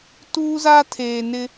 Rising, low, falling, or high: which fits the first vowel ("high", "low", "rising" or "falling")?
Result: high